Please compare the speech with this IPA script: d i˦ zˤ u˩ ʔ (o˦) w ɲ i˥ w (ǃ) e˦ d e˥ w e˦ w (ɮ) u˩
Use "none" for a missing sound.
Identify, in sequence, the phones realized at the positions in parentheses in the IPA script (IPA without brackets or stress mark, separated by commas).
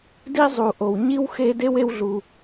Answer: o˩, x, ɮ